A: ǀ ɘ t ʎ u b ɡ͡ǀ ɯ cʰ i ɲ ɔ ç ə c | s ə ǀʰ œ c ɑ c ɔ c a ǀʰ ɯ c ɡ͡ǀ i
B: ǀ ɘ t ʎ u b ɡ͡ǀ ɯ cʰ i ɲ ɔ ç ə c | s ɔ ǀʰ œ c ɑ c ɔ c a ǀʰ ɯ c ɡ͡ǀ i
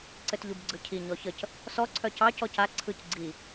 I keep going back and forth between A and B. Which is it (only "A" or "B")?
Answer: B